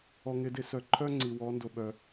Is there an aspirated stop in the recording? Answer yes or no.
yes